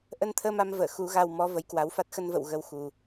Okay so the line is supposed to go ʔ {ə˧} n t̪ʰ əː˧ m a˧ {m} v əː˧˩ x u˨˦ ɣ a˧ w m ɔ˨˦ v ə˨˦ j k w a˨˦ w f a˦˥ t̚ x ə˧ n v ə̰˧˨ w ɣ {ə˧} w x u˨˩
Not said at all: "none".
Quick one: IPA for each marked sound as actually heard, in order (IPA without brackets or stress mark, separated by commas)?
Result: ə˧, m, ə˨˦